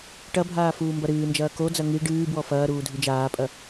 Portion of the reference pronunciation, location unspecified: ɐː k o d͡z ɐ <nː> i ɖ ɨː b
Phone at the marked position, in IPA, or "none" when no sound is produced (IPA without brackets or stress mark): ŋ